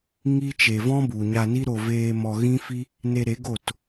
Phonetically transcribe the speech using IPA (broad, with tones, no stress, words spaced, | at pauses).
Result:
ŋi˦ t͡ʃe˨vɔ̃˦bu˨ ɲa˧ni˦ɾo˧veː˧ mɔ˨ ɣĩ˦fi˦ | ne˧ɾe˨˦ ɡo˦˨t